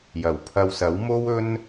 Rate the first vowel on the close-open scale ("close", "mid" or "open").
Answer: open